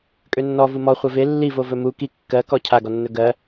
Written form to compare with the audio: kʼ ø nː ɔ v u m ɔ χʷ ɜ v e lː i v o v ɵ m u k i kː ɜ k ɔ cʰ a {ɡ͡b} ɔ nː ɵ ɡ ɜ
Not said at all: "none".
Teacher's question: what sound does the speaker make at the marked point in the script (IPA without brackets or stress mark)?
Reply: ɡ